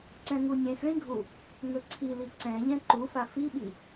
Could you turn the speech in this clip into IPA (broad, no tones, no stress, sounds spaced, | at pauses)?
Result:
ǀ ɛ̃ ŋ u nʲ ɛ̃ x ɭ ĩ ɡʱ u | ŋ ɵ ǀʰ i l i ǀ ɛ̃ ʎ ɛ̃ ǃ u f a f i ɓ i